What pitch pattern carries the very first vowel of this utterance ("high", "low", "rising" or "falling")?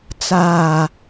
low